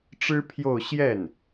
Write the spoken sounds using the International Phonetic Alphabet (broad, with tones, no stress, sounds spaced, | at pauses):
ʈ͡ʂ ɻ̩˥ pʰ j o˥˧ ʊ̯ ɕ j ɛ˥˩ n